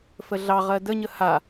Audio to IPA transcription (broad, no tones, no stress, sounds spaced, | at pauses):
f ə ɮ ɑ ʁ ɜ d ə ɲ ə h a